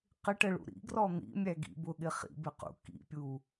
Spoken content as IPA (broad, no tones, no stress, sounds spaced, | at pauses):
q ɪ ʈ ə ɭ ṵ ɾ ḭ ɡ r ɔ n̪ ḭ mʲ æ ɡ ḭ b ʊ ɠ ɪ χ ḭ b ɪ q ṵ k ḭ pʲ u